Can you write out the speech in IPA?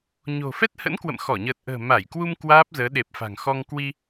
ɲ o̤˨˩ f ɛ˦˥ t̚ h ə̰˧˥ n k w ə̰˧˨ m x ɔ˧˩ ɲ əː˨˩ t̚ ʔ ə̤ː˨˩ m a˧˩ j k w u˧ m k w aː˦˥ p̚ z əː˨˦ ɗ e˨˩ p̚ f a̤˨˩ ŋ x ɔ˧ ŋ k w i˧

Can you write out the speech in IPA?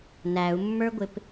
n æ u̯ mː ə˞ ɡʷ ɪ p

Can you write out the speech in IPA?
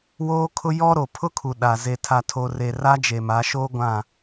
w oː˦ kʰ ʊ˦ j ɔ˦ ɾ o˨ pʰ ʊ˦ kʰ u˨ ɗ a˨ z e˨ tʰ a˨ tʰ o˨ r e˨ r a˦ d͡ʒ e˨ m a˨˦ ʃ oː˦ ɡʷ ã˦˨

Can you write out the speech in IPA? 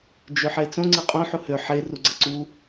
d͡ʒ ø ħ e t͡s õ ŋ͡ǀ e qʼ õ ħ u h ø ħ e r u ɡ͡ǀ ɐ ǀ u

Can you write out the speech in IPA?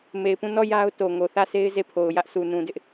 m e˨ ɪ̯ p ũ˦˨ n ɔ˦˨ j a˦ ʊ̯ t o˨ ŋ o˨ θ ä˦˨ s e˦ ɪ̯ z e˦˨ pʰ o˨ ʊ̯ j ä˦ ʔ s u˨ n ũ˨ d ɪ˦ ʔ

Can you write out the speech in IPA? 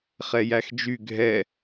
χ ɛ j æ x d͡ʒ y ɡʱ ɛ

